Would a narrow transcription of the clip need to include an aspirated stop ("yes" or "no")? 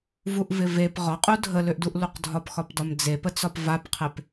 yes